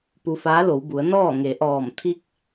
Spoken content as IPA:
pu˧faː˧˥lo˩˧w bu˩˧ə̯ nɔː˥˨ ŋe˩˧ʔɔː˧˩m t̪ʰi˧k̚

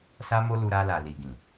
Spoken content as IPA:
sa˦mo˦lu˧ ɾa˧ la˨li˨ɡĩ˨

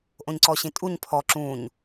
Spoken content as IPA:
ʔõɲǀɔɕĩtʼuɲ pʰɔ ǁũɲ

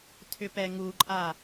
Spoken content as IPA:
tʰʏpɛŋuǃʼa

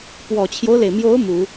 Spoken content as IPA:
pwɔ˨˩t͡ɕʰjo˦ʊ̯le˩ɪ̯mjo˧˥ʊ̯ mu˨˩˦

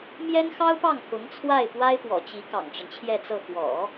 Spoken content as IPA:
mjɛ˥nxɑ˥ʊ̯pɑ˥˩ŋ xʊ˧˥ŋt͡sʰwa˥˩ɪ̯ pwa˥ɪ̯pwɔ̰˨˩t͡ɕi˧˥ kɑ̰˨˩ŋʈ͡ʂə˦nt͡ɕʰjɛ˥˧t͡sɤ˥˩ xwɔ̰˨˩˦

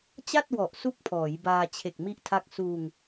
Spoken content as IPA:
t͡ɕa˥˩t̚wɔ˨˩ʔ su˥˩k̚pʰɔː˩˦jbaː˧ t͡ɕʰe˨˩k̚mi˦˥ʔtʰa˦˥k̚ suː˧ŋ

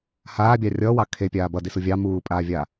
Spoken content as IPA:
haːbʲɑ rʲʌːwɑ kʰepʲaː bʌdisu vʲɑ muːpʼaːvʲa

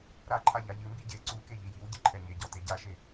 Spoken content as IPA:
ɾaǃʰa ʎaʎɨmbi ɟe ǀuke ʎijiwɟɨ ǃʰɛɲeɟɔ teɟaʃe

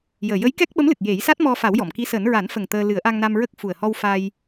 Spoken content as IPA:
jəː˨˩jə˧˥jkɛ˦˥k̚ɓə˧˥m lɨ˨˩k̚je˨˩˦j sa˦˥t̚mɔ˧ fa˨˩˦wjɔ˨˩˨mki˧˥səː˨˩˦n ɹa˨˩˦nfə˨˩ŋ t̪əː˧ lɨ˨˩˦ə̯ʔa˧ŋna˧mɹə˦˥k̚ fu˨˩ə̯hɔ˧wfa˧j

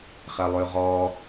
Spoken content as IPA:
χɛlˠʉʁɔ

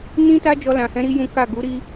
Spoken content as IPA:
nĩ˦ ta˦d͡ʒɔ˧ lã˨hɛ̃˨˦ ɾi˧ jũ˦ ka˦˨ ɡu˨˦ɾi˦

